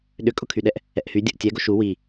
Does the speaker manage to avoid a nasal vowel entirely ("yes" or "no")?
yes